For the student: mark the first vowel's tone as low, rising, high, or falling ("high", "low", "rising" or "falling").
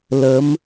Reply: rising